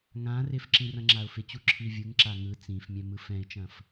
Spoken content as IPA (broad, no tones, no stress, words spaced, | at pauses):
ŋã rɪfǁĩ rɐ̃ŋ͡ǁaʊ̯fɪt͡ɕu ǁʰivʲɯŋǁa ŋɯ t͡sĩfmʲɛ̃ mɯfɛ̃ɪ̯t͡ʃɐ̃f